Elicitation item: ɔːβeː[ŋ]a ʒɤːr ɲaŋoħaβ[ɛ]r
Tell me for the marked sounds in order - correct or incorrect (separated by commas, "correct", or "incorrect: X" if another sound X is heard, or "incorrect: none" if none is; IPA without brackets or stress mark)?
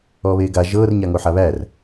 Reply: incorrect: ɡ, incorrect: æ